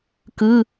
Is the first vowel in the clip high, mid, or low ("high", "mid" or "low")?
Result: high